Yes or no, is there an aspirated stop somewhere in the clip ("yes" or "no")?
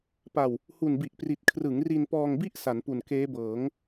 yes